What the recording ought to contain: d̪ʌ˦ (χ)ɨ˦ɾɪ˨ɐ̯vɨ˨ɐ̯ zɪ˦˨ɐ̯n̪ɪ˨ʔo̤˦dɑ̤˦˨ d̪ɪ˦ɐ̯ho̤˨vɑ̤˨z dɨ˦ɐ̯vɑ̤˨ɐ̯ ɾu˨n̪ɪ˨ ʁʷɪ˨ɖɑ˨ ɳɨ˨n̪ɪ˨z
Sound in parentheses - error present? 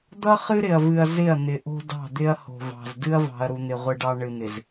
no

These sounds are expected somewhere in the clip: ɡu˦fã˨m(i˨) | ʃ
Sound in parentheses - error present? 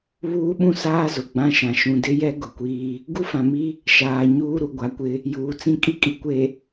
yes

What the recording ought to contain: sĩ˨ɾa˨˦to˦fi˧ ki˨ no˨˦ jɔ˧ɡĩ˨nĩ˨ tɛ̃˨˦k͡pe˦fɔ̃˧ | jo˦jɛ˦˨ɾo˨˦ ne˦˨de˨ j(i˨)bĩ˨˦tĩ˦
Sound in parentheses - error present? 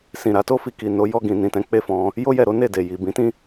no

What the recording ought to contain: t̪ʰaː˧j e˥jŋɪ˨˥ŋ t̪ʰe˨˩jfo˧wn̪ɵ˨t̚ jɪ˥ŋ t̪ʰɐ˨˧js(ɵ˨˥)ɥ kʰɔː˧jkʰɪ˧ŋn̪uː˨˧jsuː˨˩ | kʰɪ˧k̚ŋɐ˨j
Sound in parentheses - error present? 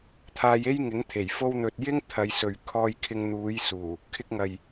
yes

